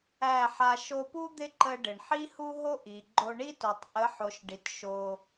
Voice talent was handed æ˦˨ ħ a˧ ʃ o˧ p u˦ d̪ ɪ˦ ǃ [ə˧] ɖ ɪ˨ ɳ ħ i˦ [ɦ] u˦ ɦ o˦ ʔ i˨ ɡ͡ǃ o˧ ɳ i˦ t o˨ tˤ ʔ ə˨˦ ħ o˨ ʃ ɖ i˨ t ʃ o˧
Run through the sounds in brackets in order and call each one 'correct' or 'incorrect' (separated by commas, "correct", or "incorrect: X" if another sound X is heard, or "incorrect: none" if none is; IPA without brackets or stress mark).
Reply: correct, incorrect: h